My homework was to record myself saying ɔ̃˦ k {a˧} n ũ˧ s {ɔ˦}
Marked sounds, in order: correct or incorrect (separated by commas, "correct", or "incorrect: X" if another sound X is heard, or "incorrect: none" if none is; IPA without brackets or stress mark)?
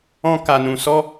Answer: correct, correct